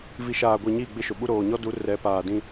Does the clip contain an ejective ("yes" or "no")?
no